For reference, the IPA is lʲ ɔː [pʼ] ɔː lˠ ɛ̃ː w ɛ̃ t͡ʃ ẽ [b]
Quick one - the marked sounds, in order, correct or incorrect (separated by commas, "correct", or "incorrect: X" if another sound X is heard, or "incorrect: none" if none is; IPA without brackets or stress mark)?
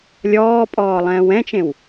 correct, incorrect: w